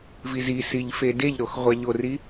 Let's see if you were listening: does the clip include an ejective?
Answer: no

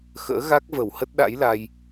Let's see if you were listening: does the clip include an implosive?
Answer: yes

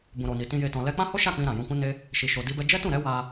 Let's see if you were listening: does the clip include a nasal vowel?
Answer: yes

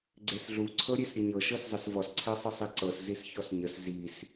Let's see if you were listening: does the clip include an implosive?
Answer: no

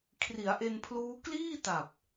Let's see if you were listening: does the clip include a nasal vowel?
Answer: no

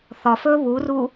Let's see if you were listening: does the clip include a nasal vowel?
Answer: no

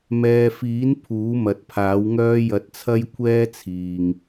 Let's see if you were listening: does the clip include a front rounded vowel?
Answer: yes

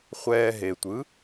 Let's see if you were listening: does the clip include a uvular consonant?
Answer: yes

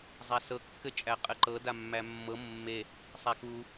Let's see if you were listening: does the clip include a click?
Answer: yes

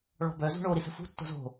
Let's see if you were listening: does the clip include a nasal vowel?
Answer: no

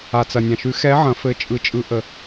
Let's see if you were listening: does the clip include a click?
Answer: no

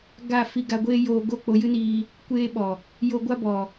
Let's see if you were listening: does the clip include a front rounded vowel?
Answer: no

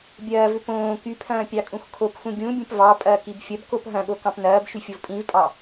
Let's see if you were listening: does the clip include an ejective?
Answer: yes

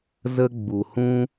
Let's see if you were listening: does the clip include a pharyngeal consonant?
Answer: no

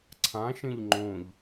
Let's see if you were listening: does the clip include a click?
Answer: yes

